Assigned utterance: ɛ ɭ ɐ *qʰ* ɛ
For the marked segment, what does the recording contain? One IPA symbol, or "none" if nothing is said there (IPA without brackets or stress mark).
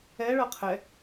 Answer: qʰ